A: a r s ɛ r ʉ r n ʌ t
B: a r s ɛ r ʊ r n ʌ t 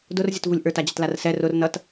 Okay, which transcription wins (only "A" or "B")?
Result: B